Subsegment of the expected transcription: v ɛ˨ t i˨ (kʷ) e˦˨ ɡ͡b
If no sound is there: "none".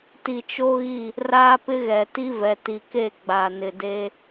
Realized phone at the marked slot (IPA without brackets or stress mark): k